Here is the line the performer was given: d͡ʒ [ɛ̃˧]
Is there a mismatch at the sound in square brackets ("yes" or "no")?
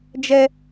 yes